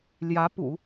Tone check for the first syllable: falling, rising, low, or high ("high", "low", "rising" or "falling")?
rising